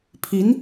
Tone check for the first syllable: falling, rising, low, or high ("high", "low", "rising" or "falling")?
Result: rising